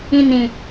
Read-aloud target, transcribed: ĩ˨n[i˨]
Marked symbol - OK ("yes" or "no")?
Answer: no